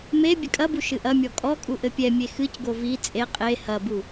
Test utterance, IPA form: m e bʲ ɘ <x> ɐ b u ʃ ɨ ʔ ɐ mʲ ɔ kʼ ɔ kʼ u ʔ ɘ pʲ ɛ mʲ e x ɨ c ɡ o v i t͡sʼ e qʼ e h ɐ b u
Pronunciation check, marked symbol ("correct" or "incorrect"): incorrect